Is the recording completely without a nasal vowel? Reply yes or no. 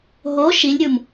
yes